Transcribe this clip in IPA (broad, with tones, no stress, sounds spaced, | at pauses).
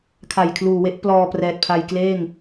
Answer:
kʰ a˨˩ j kʰ l uː˨˩ w e˦˥ ʔ p l ɔː˧ p r ɛː˨˩ t̚ pʰ a˧ j k l eː˥˩ ŋ